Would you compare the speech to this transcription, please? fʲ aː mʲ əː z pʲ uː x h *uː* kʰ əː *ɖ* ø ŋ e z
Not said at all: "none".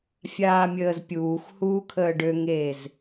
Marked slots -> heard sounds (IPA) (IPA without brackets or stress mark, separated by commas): uː, ɖ